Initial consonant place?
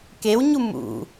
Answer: velar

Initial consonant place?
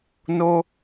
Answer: alveolar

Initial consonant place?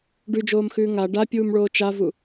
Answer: retroflex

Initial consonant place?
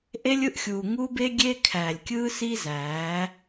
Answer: glottal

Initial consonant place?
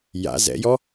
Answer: palatal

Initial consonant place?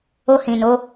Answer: glottal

